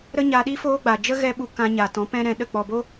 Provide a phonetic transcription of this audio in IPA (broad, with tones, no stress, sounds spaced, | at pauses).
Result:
ɾ ə˦ ɲ a˧ ɗ i˦ f oː˦ ɡ͡b a˨ d͡ʒ ə˦ ɣ ɛ˦ ɓ u˧ k ã˧ ɲ a˨ t ɔ̃˨˦ p ɛ̃˦ ɾ ɛ̃˧ ɗ ə˦˨ k͡p ɔ˨ b o˦